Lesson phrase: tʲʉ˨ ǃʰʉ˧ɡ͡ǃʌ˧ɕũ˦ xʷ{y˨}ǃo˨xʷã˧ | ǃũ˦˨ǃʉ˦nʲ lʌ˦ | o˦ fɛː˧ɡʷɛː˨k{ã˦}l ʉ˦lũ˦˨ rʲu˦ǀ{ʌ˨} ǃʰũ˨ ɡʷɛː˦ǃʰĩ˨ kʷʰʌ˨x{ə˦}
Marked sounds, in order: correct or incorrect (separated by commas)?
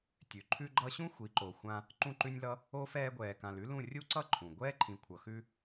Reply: incorrect, incorrect, incorrect, incorrect